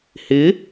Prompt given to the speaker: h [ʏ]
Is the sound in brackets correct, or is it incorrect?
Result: incorrect